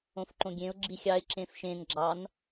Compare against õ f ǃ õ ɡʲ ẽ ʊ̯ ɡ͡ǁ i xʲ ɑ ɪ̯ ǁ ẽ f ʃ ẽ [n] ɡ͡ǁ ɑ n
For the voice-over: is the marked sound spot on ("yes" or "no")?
yes